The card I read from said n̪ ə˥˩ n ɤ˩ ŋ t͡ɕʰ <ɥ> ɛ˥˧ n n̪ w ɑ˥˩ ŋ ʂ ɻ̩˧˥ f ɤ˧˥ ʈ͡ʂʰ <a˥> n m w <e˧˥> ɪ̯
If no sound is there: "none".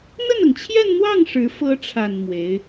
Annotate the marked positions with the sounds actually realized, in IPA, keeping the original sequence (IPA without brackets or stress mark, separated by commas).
j, a˨˩, e˧˥